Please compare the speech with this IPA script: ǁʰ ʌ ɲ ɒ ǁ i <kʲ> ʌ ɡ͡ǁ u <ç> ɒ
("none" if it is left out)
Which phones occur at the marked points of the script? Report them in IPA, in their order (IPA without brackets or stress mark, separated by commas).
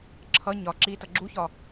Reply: t, ç